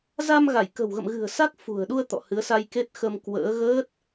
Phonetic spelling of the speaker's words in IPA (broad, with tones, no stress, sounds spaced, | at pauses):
z a˧ m ɣ a˧˩ j k ə̤˨˩ w ɣ ə̰˧˨ m ɣ ɨ̤˨˩ ə̯ s a˦˥ k̚ f ṳ˨˩ ə̯ ɗ u˧ ə̯ t̪ ɔ̰˧˨ h ɨ˨˦ ə̯ s a˧ j k e˦˥ t̚ x ə˧ m k w ə̰ː˧˥ ɣ əː˦˥ t̚